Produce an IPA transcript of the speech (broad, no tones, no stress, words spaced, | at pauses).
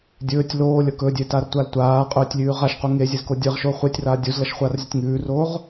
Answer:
dʲɵːtʲ loːlʲɐ kɵdʲetartʷal tʷaːqʼɵːtʲlʲʉː ʁaʃqu ŋezʲezko dʲɨʁʃo χʷetʲraː dʲuzlɐʃχʷaːrzʲɐtʲ ŋʉːroːʁ